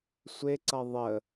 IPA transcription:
sʷeǀʌ ðˤə

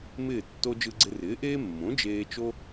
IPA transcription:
mɪː˥˩tːo˥ d͡ʒɯ˧ɡ͡ǀɪ˧rɪː˩˥ʔeː˥ mːõ˩˥d͡ʒeː˧ t͡ʃo˥

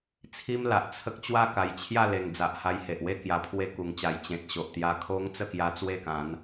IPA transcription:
t͡sʰi˦mla˨ʔt͡sʰə˦k̚ t͡ɕwa˥˧ka˨˩jt͡ɕʰja˥˧le˨˩ŋ d͡za˨ʔha˧jhe˨ʔwe˦ kja˨˩pʰwe˧ku˨˩ŋt͡ɕa˨˩j t͡ɕẽ˨t̚ɕo˨ʔ t̪ja˧kʰo˦ŋ t͡sə˥˧kja˧ t͡swe˥˧kã˨˦n

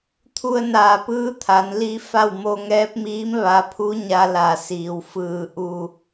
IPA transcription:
t̪ʰu˧ə̯naː˧˩pɯː˧˥ t̪ʰa˩˧n li˧ fa˥˨w mo˧ŋɛː˧˥p̚miː˧˥m ʋa˧pʰu˧˥ɲa˧ la˧˩ siː˩wfɯː˧˩ ʔu˧

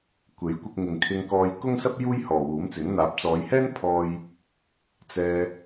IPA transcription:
kʷe˨˥jkʷɪ˧k̚ ŋɪ˨ŋkʰɪ˧ŋkɔː˧j kʊ˥ŋsɐ˥p̚ juː˥jhɔː˨wuː˨˥mt͡sɪ˨˥ŋ n̪aː˨˥p̚t͡sɔː˨˧jhɛː˥npʰɔː˧j | t͡sɛː˧

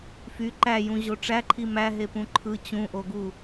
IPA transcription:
fy ǃæjũ ʑoʈ͡ʂæǃʰi mæɦepũ ǃʰɯ t͡ɕũʔoɡu

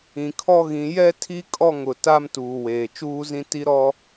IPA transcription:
ĩ˨kʰɔ˦ɣĩ˨˦ jɛ˦tʰi˦kʼɔ˦˨ŋ ʊ˨ ta˦mtuː˨weː˨ t͡ʃuː˦zĩ˦ ti˦ ɾɔ˦

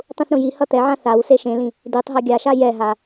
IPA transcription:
tˤũθɾũjihʌ t̪ɛʕã θawse ʃẽlĩ | ditˤɦʌ ɡʲaʃa jɛɦa

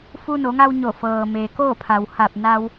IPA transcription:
fu˧no˩˧ŋa˧w ɲo˧˩fɤː˩ meː˩koː˥˨pʰa˩w ha˧˩p̚ na˧w

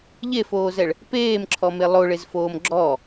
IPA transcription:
ʎefoːzɛɭ | peːmǁʰɔme lˠoɭezfoːm ɡ͡ǁɔ

